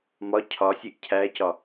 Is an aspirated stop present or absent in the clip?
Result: present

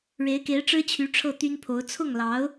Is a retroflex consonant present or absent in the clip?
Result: present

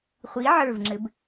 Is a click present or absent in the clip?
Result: present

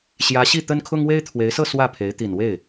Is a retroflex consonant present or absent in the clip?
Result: absent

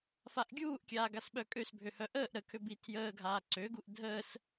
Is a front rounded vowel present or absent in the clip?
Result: present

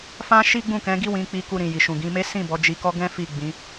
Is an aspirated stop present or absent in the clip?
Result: absent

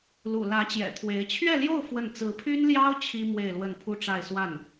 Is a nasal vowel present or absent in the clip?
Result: absent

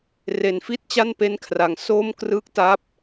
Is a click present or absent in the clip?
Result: absent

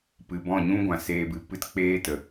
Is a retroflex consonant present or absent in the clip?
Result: absent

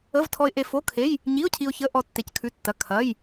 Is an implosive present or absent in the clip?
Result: absent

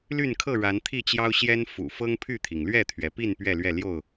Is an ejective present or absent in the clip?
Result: absent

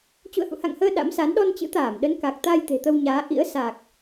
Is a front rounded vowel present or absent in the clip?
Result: absent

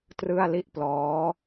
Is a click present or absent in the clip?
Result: absent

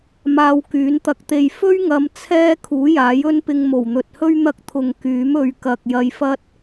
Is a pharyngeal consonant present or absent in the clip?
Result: absent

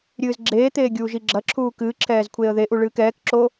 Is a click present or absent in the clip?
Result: present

